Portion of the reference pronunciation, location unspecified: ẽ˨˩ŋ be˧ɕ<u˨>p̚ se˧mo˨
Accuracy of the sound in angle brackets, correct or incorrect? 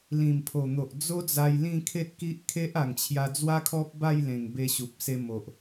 correct